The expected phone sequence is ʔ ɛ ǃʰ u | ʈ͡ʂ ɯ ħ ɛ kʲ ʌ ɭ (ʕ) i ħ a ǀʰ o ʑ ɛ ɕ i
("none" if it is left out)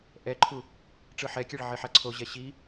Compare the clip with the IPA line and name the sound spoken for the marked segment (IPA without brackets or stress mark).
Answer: ʕ